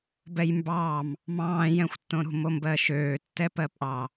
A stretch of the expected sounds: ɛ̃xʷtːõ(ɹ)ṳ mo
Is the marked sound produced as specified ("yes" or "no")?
no